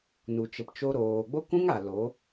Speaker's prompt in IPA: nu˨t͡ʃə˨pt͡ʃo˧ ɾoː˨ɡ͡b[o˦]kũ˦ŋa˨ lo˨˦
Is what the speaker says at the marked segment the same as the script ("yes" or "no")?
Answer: yes